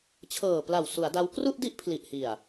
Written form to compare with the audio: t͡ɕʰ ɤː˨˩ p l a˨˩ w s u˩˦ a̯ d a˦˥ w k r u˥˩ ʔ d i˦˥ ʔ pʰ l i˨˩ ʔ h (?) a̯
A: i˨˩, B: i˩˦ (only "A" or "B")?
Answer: A